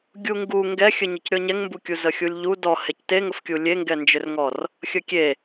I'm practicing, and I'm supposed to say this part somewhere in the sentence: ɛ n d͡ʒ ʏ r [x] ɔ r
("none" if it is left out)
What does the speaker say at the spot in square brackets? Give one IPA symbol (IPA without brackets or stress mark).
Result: ŋ